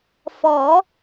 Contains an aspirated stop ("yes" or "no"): no